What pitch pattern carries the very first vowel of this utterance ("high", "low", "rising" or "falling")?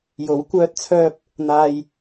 rising